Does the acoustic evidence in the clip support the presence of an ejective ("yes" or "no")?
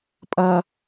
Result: yes